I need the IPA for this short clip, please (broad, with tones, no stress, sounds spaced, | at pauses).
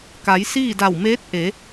k a˩˧ j s iː˥˨ d a˧˩ w m eː˧˥ t̚ ʔ e˩˧